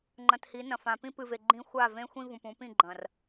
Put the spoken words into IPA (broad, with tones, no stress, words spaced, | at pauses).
ŋ͡ǃɐ̃˨thi˨˦ nɐ̃˨fã˨pĩ˦ pɨ˨ve˨ ɡ͡ǃĩ˦ xʷa˦˨vẽ˦xʷĩ˦ vũ˨pũ˨˦pĩ˦˨ ɡ͡ǃɐ̃˨r